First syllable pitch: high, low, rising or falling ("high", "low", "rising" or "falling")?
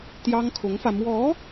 high